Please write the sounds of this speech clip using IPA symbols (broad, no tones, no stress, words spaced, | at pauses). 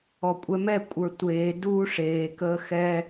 ɔkʷʼɛmɛ kʷʼə˞tʷeː duːʂeː kəːxɛ